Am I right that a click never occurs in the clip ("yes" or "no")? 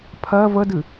yes